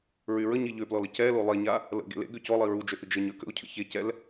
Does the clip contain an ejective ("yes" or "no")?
no